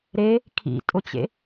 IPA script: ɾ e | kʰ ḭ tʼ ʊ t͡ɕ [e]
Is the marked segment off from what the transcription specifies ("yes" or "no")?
yes